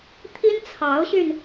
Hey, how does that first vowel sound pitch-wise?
high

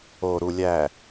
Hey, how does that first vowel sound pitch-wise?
low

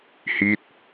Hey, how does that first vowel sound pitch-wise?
falling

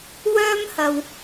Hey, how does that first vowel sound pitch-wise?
high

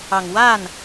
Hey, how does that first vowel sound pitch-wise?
low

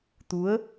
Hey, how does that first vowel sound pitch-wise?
rising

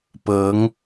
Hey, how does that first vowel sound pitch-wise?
rising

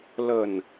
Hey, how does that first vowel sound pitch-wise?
low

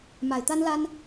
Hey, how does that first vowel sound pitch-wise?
low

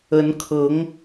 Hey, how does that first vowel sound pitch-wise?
rising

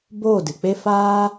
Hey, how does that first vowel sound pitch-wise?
falling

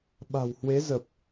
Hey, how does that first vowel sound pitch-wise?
low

